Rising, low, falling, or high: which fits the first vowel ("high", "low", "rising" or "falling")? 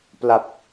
low